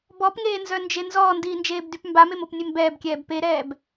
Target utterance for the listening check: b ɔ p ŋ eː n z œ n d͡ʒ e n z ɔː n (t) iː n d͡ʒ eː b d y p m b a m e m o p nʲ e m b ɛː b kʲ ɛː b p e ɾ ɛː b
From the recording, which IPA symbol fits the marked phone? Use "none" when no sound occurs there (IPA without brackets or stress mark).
d